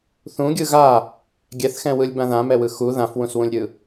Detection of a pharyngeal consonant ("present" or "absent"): absent